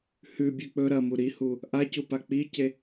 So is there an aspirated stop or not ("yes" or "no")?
no